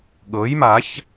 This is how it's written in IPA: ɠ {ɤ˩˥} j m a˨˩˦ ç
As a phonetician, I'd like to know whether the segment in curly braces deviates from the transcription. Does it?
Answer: no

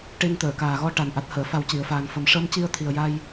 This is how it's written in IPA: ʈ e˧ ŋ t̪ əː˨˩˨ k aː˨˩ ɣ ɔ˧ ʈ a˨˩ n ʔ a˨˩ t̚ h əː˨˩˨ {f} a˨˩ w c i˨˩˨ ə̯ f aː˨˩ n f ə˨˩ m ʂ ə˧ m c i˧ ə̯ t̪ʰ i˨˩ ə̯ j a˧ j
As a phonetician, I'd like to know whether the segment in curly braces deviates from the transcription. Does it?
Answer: no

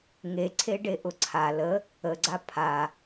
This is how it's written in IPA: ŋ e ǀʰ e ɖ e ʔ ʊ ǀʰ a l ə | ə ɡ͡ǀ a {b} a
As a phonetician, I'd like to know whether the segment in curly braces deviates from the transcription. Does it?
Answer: yes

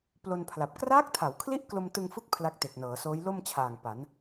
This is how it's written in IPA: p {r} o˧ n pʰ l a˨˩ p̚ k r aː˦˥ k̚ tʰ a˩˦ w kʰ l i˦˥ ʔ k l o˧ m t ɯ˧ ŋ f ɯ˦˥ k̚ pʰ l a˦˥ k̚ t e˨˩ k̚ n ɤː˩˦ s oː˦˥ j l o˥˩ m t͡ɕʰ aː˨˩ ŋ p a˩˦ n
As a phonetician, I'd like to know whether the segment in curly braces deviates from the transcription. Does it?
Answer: yes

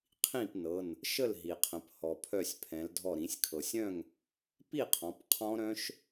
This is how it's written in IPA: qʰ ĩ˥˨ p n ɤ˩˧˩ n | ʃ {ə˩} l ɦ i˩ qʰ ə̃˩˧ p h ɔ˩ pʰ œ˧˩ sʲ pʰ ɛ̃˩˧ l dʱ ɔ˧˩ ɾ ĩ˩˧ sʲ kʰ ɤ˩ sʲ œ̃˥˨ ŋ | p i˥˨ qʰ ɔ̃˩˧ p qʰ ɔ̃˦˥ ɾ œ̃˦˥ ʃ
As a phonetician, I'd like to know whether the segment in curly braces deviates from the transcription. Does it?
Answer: yes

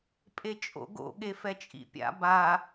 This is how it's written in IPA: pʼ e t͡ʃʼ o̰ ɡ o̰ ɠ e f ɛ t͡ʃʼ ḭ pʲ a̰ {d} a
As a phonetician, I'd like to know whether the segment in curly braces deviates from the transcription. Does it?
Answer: yes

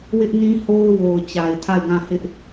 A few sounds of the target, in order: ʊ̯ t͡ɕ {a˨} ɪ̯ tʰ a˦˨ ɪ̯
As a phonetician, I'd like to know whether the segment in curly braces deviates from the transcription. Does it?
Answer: no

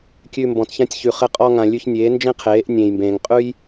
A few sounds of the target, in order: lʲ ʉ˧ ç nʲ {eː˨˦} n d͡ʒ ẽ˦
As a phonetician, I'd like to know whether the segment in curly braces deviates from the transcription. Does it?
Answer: no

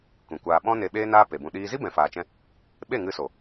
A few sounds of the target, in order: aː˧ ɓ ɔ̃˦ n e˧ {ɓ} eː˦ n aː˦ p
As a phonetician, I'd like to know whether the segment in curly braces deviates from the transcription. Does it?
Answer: no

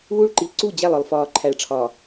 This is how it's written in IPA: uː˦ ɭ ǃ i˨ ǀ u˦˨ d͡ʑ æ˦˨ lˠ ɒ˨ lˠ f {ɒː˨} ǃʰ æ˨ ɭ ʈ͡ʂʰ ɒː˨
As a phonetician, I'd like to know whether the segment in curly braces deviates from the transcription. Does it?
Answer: no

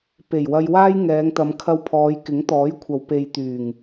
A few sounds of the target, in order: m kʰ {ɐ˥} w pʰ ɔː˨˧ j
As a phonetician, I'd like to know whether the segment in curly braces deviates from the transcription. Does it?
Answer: no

